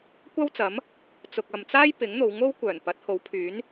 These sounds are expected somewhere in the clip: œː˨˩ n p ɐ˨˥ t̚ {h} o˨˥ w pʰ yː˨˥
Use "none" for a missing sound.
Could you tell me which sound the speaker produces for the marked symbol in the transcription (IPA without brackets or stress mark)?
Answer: h